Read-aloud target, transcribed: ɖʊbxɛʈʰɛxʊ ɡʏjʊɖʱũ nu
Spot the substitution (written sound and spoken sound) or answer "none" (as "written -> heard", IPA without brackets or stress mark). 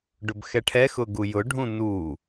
ʏ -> u